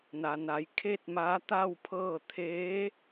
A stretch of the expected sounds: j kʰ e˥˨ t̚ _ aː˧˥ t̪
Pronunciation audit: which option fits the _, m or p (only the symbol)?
m